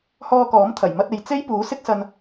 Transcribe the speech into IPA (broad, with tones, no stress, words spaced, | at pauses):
hɔː˧kɔː˨˥mt̪ʰɐ˨˩j mɐ˧t̚e˨j t͡se˥jpuː˨˥ sɪ˥k̚sɐ˧n